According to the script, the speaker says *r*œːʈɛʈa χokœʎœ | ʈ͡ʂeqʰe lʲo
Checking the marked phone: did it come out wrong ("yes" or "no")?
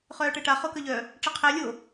yes